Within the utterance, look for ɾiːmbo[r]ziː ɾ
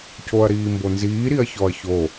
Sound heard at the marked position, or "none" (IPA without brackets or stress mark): n